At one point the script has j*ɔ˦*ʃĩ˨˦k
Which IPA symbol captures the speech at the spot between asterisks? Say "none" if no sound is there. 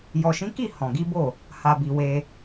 ɔ˨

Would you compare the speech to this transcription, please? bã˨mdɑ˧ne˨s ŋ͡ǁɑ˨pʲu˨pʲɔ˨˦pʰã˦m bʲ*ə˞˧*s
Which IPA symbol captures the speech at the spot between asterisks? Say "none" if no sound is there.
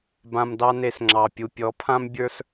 ə˞˧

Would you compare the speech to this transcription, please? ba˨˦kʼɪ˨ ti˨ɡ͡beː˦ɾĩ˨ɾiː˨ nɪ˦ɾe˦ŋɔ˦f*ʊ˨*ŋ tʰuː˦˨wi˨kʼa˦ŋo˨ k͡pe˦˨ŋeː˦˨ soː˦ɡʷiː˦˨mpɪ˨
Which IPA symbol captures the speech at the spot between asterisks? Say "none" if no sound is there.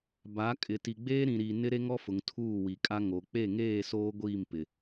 ʊ˨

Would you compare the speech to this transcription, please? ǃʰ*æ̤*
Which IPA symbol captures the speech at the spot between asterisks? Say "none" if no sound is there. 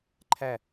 æ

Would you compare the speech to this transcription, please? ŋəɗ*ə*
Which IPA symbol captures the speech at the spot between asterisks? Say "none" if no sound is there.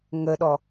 ɔ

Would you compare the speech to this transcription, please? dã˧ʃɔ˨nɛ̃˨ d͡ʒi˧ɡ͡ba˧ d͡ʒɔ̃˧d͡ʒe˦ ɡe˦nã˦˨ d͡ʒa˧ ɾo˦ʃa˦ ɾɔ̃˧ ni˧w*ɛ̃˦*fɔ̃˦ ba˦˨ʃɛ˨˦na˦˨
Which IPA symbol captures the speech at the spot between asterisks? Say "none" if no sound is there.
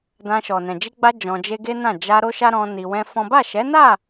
ɛ̃˦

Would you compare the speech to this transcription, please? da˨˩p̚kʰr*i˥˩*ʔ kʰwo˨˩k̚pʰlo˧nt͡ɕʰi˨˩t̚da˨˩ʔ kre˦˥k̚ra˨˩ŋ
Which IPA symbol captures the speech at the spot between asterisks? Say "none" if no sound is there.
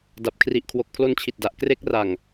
i˨˩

